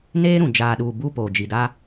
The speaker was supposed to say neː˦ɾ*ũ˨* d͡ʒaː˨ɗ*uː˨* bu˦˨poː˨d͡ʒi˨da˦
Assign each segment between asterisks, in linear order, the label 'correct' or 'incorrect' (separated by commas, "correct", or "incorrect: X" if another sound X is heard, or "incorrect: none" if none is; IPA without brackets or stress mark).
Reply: correct, correct